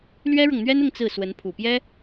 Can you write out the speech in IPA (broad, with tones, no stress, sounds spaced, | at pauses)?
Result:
l ɥ ɛ˥ ɻ ɤ˨ ŋ n̪ ɥ ɛ˥ n ʊ˥˧ ŋ t͡s ɹ̩˥˩ s w ə˧˥ n pʰ u˨˩ p j ɛ˥